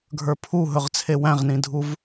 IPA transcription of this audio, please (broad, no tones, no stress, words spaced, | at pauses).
ɡʱə˞pʰuɦɵʁt͡sʰe wæ̃ʁnĩdʱuv